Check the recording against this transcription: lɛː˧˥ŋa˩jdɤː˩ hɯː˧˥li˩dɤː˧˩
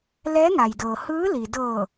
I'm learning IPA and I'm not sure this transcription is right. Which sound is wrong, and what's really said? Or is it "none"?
none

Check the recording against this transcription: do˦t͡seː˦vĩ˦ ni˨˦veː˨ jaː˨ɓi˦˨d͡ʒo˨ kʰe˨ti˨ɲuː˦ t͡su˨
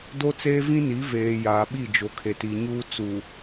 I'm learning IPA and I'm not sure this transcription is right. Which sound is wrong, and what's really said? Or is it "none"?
none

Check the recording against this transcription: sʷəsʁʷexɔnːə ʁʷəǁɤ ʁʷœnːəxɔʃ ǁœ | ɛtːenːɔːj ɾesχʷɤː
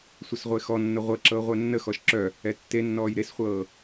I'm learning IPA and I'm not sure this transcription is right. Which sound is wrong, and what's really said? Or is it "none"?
none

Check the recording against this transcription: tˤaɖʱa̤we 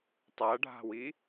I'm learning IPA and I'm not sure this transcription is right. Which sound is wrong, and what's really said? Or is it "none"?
e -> i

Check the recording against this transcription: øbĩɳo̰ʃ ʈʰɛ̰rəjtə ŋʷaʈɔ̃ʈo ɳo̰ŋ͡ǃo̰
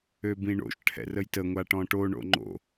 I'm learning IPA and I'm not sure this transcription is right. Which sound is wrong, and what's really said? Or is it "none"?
none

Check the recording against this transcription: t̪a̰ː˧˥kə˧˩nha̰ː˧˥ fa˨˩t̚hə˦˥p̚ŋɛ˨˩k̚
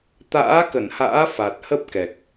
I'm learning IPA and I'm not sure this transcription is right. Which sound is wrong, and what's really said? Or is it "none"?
ŋ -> k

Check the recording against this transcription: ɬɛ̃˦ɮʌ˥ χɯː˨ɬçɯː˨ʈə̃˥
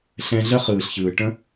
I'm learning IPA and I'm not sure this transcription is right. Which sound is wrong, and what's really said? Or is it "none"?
ʌ˥ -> ə˥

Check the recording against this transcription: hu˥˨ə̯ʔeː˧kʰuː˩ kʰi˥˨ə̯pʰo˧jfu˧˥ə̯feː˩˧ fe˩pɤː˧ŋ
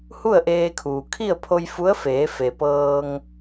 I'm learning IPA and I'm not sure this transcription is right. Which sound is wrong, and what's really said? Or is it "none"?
none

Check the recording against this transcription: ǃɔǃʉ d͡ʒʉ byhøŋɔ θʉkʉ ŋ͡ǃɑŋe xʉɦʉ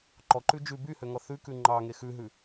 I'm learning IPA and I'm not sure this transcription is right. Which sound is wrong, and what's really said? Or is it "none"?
none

